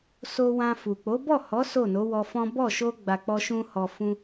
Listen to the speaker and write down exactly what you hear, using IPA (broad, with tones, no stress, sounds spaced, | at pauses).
s o˧ w ã˧ f u˨ k͡p o˨˦ b ɔ˦˨ h ɔ˨˦ s o˦˨ n o˨˦ w ɔ˧ f ɔ̃˦ b ɔ˦˨ ʃ o˧ ɡ͡b a˨ k͡p ɔ˧ ʃ ũ˧ h ɔ˨ f ũ˧